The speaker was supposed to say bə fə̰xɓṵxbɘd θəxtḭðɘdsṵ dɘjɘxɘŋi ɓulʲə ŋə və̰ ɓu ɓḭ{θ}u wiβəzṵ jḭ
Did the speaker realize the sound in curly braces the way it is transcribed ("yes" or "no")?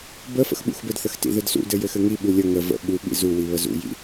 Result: no